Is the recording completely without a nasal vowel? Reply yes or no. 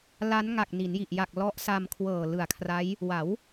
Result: yes